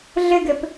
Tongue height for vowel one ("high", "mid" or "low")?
mid